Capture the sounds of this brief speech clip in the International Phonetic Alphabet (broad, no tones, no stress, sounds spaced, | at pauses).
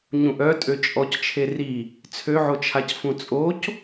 ɲ ũ ʔ œ tʼ ø t͡ʃʼ ɔ c t͡ʃʰ e r i | t͡sʰ ø ʕ o t͡ʃʰ a c f ũ t͡sʼ o c